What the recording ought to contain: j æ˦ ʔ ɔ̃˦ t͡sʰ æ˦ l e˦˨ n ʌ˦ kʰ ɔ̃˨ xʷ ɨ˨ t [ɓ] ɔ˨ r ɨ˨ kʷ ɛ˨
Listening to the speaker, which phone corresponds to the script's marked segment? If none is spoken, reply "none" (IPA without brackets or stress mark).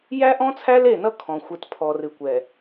pʰ